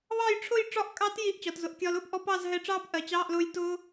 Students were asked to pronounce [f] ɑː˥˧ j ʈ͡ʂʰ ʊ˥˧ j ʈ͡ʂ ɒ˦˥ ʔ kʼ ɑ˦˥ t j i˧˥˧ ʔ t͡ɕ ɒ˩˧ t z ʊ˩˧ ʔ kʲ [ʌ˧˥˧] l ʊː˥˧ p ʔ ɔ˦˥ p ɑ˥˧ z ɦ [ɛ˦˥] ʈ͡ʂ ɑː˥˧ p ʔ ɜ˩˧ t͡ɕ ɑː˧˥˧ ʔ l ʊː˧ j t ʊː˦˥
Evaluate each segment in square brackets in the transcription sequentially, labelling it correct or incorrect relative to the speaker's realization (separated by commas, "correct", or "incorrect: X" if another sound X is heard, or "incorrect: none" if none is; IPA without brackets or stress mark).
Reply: incorrect: β, incorrect: ɒ˧˥˧, incorrect: ɛ˧